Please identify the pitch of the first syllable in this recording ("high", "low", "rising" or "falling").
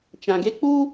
low